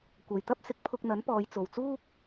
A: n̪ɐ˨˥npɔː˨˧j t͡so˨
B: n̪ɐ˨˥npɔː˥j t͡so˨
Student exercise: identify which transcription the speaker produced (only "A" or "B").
A